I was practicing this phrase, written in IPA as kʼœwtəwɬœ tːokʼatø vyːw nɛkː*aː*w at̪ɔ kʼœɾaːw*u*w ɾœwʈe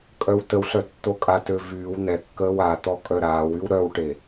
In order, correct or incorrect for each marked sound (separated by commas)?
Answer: incorrect, incorrect